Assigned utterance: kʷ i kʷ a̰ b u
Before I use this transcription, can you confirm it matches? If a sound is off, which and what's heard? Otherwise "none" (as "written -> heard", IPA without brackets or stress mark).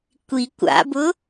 u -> ʊ